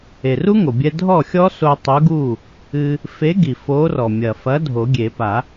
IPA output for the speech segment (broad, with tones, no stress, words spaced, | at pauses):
e˩ru˦˥ŋo˩bʲɛ˧ dʱɔ˥˩xʲɔ˦˥so˧ tˤu˨˥ɡu˥˩ | ɨ˧ | fe˨˥ɡi˩ fo˨˥rɔ˩ mʲɐ˩fɐ˨˥ dʱo˨˩˦ɡʲe˨˩˦ pa˨˩˦